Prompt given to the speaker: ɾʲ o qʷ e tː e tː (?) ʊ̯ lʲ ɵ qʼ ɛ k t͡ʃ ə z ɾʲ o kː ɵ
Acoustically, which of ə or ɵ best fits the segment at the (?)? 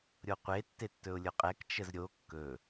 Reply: ɵ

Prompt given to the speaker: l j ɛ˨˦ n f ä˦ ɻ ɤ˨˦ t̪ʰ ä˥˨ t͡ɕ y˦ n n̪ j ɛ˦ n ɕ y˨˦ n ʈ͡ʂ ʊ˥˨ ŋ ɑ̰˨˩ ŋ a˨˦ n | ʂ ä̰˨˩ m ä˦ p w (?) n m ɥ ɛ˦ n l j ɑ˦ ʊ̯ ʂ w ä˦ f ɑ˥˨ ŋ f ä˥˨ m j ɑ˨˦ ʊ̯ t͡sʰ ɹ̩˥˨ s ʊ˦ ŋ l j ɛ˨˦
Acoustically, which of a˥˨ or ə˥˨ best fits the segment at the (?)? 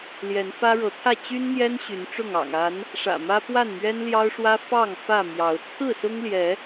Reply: a˥˨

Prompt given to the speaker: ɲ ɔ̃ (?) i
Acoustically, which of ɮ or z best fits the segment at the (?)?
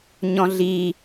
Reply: ɮ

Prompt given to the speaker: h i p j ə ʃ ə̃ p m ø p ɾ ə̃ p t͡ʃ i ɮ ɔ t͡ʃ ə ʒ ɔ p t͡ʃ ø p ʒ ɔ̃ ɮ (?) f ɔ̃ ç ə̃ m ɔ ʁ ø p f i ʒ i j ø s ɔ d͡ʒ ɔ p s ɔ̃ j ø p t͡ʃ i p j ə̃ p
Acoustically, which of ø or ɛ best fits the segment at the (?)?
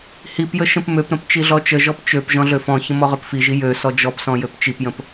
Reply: ø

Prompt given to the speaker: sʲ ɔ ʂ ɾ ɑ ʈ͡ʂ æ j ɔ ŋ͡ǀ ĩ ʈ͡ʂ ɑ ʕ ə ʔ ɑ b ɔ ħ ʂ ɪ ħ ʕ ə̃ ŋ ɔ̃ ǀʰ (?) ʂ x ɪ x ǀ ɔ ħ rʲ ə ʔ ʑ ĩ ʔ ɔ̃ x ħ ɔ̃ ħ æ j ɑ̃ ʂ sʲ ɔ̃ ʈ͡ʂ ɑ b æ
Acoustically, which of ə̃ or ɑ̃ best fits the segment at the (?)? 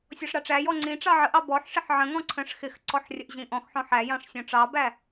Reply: ə̃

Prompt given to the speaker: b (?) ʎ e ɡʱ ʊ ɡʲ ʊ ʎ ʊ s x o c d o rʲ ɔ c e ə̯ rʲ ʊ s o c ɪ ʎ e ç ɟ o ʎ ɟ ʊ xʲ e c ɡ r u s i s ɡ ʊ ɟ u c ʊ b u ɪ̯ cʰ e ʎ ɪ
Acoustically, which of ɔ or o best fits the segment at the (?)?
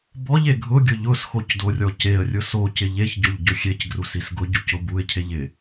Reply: ɔ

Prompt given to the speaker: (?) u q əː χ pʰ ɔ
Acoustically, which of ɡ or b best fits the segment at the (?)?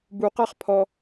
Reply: b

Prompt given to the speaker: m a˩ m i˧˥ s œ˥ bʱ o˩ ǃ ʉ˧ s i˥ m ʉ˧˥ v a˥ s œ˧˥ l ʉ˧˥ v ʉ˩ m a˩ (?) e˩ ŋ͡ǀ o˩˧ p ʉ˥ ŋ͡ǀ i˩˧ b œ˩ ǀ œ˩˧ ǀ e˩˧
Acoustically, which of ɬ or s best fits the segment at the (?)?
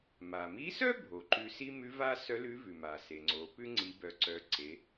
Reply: s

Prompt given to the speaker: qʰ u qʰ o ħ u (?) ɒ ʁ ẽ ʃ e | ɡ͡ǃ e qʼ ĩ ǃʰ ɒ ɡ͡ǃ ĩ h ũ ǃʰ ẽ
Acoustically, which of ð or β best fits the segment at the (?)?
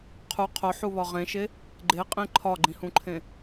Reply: β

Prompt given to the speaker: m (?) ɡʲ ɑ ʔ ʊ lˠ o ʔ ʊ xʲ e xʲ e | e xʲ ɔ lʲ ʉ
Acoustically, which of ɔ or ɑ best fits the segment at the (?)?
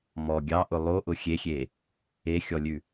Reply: ɔ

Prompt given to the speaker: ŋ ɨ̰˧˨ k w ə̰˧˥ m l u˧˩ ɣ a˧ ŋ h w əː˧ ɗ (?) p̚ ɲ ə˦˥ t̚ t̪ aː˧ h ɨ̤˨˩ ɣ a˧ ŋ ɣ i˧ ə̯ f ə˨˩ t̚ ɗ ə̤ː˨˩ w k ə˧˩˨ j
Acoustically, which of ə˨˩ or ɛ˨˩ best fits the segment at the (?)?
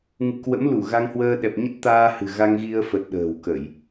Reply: ɛ˨˩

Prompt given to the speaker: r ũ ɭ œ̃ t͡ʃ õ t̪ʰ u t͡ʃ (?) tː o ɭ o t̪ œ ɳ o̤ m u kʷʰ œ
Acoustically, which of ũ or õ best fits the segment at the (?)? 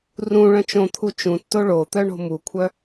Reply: ũ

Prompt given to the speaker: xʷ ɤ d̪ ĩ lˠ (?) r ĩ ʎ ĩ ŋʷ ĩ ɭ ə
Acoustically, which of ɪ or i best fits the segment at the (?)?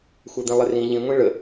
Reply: ɪ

